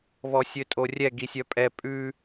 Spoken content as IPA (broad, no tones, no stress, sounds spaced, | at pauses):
β ɔ sʲ ø tʼ o rʲ ɛ ɡ i sʲ œ pʼ ɛ pʼ ʉ